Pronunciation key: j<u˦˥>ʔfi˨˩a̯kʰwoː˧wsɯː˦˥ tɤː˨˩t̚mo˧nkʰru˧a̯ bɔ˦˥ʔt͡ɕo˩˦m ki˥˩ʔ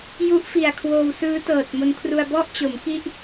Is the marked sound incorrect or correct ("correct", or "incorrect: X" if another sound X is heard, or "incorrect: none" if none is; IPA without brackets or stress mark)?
correct